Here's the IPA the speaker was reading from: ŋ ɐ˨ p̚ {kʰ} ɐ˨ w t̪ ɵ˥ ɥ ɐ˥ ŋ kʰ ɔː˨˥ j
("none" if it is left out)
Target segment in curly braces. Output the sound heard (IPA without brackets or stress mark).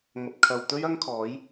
kʰ